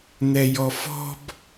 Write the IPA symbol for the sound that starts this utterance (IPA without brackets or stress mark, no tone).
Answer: n̪